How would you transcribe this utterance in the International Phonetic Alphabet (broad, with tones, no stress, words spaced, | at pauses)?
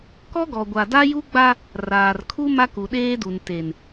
kɔ˦ɡɔ˨ ɡʷa˨da˦ju˦ɡ͡ba˦ | raː˨rkʰu˦ ma˦ku˨ɗeː˦du˨n te˨n